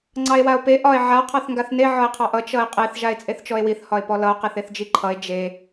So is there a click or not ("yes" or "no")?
yes